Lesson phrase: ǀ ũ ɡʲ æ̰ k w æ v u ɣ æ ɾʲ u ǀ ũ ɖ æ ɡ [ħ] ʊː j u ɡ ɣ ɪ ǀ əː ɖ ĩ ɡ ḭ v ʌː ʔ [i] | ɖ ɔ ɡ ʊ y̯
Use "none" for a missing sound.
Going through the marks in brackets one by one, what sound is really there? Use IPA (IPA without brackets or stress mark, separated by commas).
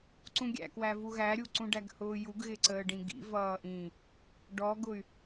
h, ĩ